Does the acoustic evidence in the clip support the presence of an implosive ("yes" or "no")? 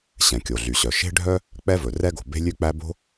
no